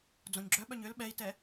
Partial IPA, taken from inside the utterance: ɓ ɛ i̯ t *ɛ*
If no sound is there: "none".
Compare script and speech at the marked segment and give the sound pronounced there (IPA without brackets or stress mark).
ɛ